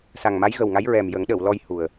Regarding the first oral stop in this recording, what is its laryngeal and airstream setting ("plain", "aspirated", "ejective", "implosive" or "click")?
implosive